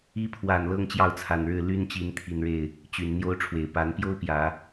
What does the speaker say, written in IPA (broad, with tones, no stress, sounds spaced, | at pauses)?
i˧˥ pʰ w a˨˩ n l ɤ˥ ŋ t͡ɕ j ɑ˥˩ ʊ̯ t͡sʰ a˨˩ n ɻ ɻ̩˥˩ l y˥ n t͡ɕ i˧˥ n t̪ʰ i˨˩ n ɻ e˥˩ ɪ̯ | t͡ɕ y˨˩ n n̪ j o˥ ʊ̯ ʈ͡ʂʰ w e˨˩ ɪ̯ p a˧˥ n p j o˥ ʊ̯ p j ä˨˩˦